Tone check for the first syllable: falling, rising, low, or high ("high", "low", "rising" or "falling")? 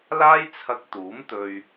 high